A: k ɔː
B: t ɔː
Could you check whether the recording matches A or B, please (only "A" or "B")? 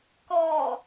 A